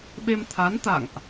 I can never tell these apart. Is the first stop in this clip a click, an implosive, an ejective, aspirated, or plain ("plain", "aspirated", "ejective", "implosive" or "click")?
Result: implosive